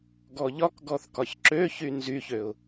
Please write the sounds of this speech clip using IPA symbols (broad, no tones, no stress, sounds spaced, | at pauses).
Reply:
ɡ ɔ ʎ ɒ k ɡ ɔ θ k ɒ ç ǁ ø ç y n z y ç ø ʊ̯